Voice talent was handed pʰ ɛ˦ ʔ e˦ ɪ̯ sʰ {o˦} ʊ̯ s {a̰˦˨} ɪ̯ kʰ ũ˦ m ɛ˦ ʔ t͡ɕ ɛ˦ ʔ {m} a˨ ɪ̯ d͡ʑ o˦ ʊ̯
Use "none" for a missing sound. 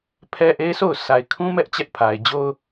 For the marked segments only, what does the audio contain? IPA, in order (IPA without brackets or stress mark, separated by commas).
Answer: o˦˨, a˨, pʰ